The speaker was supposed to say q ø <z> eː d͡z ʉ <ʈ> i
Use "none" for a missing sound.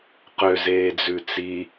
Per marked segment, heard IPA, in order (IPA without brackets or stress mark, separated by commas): z, t͡s